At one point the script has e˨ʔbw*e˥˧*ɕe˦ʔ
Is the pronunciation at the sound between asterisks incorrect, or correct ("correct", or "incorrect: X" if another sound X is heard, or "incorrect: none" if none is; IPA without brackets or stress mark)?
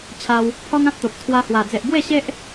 correct